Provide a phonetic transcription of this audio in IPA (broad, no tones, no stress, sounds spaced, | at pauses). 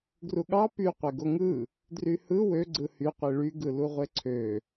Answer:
ɡ r u ɠ ɑ p y qʷ e ɡ o ŋ ɯ | d r y h ɯ w ø ɡ͡ǀ ɯ h y qʷ i ɭ y ɡ ɯ l u ʁʷ e ǀʰ ø